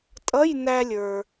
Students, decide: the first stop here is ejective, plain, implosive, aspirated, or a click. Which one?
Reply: ejective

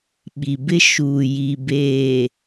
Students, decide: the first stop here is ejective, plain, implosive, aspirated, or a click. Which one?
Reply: implosive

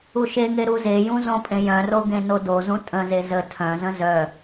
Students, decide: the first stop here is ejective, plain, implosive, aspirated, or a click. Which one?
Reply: ejective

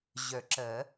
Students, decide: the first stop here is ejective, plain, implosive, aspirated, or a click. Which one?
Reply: click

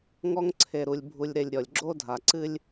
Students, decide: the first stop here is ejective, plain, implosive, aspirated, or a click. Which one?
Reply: click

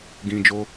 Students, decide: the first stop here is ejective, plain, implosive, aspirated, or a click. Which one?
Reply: plain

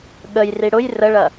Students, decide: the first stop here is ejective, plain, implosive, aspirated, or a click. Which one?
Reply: implosive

